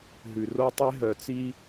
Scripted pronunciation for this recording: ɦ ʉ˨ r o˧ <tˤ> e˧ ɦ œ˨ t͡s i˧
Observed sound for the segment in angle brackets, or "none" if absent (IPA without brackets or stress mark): tˤ